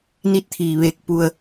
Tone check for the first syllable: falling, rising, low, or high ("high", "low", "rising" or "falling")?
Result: rising